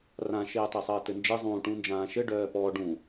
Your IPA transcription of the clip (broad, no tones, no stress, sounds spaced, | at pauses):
r ã ʃ eː tˤ e sˤ ɘː t ɘ n d͡ʒ e zˤ ũː ʈ ũ n d͡ʒ ãː ʃ ɘ ɖ œː p ɔ ɖ ũ